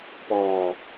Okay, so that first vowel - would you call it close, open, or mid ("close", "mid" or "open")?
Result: mid